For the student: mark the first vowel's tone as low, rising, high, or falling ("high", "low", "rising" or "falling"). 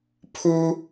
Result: high